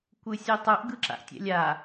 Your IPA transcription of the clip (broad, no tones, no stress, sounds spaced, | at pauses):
kʷ ɯ sʲ ɯ tˤ u ʔ ɡ ɯ ǁ a̰ ʔ tʲ ɛ̰ lʲ a